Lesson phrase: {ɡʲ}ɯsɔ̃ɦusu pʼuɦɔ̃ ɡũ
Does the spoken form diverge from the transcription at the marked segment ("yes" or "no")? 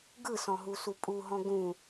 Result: yes